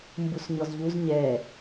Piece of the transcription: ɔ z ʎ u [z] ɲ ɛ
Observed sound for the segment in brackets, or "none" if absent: z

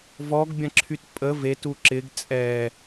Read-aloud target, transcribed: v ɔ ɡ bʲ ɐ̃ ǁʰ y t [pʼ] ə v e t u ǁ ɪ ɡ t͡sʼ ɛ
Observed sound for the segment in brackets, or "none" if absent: pʼ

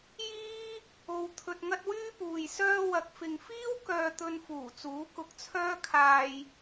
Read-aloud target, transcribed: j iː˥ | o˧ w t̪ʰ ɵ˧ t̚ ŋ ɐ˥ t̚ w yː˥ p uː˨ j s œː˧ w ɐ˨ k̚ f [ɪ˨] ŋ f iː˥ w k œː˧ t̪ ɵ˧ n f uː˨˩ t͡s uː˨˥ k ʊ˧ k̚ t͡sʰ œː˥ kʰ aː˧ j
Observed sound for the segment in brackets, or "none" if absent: ɪ˨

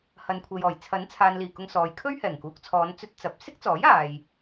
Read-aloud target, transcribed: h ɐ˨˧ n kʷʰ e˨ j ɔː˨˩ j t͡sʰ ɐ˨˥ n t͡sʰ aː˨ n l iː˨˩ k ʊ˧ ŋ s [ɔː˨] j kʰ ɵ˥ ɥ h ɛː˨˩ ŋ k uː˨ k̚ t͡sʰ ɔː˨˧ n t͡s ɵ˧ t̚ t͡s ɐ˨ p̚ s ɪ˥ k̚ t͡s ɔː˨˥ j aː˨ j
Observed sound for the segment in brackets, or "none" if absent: ɔː˨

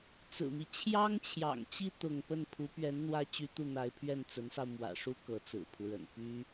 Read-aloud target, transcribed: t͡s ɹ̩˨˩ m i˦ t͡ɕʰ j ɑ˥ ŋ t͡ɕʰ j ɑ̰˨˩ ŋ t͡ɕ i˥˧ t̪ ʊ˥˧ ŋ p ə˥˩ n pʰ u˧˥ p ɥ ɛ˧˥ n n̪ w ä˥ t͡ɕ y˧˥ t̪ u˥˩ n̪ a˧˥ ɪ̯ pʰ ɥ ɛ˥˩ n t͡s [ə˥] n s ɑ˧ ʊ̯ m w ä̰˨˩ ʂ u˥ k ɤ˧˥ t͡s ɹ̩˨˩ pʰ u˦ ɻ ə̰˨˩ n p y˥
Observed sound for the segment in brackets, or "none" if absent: ə˧˥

